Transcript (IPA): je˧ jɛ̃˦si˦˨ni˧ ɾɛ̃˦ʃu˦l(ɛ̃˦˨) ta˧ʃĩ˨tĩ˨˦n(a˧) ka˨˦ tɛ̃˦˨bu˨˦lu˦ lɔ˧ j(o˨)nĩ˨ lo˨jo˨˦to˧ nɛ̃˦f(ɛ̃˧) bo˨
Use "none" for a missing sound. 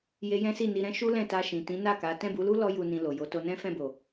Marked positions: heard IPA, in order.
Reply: ɛ̃˦˨, a˦˨, u˨, ɛ̃˦˨

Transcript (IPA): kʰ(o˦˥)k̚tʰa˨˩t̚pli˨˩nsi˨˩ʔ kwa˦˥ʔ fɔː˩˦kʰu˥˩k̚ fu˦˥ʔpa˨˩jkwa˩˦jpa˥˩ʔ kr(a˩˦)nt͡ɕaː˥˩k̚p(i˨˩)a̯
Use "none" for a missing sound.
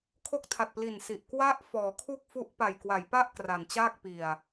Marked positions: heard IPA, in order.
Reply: o˦˥, a˩˦, i˨˩

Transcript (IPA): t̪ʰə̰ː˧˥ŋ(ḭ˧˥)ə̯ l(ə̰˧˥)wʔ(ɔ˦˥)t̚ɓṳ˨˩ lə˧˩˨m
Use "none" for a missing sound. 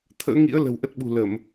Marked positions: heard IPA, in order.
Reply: ḭ˧˥, ə̤˨˩, ə˦˥

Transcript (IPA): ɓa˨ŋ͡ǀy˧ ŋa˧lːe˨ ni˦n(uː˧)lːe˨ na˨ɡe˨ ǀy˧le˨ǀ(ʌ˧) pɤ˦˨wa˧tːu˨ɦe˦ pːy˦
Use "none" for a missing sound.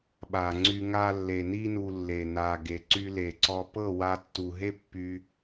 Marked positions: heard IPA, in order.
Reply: u˧, ɔ˧

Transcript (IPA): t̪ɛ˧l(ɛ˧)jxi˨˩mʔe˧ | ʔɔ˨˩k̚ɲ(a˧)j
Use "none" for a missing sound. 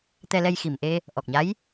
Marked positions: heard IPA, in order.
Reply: ɛ˧, a˧˥

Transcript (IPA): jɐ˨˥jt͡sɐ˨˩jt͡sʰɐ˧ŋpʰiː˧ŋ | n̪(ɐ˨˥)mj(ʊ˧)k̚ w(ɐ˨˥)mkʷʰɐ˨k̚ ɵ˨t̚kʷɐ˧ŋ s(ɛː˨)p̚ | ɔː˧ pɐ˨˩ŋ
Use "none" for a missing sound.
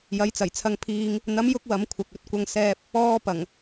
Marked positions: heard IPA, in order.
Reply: ɐ˨˥, ʊ˧, ɐ˨˥, ɛː˧

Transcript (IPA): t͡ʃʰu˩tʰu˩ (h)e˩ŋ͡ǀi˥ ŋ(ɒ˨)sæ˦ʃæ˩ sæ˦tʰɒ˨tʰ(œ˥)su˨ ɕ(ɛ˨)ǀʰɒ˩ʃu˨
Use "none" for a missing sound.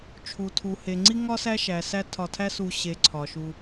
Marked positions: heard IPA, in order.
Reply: h, ɒ˥, æ˥, e˨

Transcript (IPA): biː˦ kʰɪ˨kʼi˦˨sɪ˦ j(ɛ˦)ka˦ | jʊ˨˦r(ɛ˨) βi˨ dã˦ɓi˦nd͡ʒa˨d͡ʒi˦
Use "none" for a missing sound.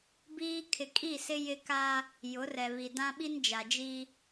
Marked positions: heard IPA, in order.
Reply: ɪ˦, ɛ˨

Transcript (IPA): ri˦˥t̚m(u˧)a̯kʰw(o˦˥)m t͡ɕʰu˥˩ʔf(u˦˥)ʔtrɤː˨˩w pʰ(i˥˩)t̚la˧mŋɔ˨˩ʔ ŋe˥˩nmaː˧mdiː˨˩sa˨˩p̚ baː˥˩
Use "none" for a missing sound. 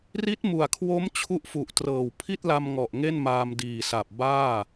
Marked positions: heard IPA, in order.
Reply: u˨˩, o˦˥, u˨˩, i˥˩

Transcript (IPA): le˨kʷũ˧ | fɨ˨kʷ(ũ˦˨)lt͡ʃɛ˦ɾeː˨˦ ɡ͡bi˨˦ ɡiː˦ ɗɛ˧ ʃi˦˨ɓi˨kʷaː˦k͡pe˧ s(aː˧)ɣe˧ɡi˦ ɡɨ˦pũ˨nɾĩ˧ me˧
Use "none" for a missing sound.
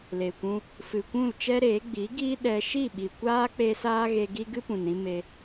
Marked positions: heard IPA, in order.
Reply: ũ˦˨, aː˦

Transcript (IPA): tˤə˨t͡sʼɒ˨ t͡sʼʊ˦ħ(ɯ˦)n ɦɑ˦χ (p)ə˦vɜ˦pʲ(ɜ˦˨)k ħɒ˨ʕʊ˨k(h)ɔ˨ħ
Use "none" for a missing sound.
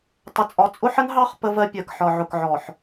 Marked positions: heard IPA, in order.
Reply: ə˦, p, ɜ˨, ʕ

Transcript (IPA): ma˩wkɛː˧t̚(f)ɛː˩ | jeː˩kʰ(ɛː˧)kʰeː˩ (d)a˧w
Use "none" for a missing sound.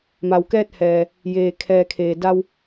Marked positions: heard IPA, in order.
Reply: h, ɛː˩, d

